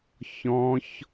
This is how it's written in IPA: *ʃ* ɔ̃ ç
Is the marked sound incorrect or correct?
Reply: incorrect